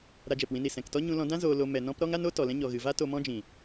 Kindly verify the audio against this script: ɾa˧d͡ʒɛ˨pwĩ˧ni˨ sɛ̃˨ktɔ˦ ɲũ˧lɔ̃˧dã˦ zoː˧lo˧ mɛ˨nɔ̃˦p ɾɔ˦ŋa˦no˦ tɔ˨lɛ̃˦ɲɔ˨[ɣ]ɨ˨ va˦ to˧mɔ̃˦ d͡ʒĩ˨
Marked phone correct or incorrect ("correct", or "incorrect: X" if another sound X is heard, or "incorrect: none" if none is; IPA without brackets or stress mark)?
correct